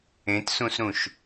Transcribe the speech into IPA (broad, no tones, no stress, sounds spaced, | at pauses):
ẽ t s ũ s ɾ ũ ʃ